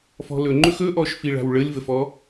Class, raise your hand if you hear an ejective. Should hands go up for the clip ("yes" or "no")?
no